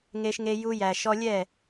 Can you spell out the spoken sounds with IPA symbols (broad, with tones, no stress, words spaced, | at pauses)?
ŋe˧ʃŋe˧ ju˧jæ˨ ʃɔ˧lʲɛ˦˨